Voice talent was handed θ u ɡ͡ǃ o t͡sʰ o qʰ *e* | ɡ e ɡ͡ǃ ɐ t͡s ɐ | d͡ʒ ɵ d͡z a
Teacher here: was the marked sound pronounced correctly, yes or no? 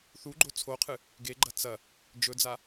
no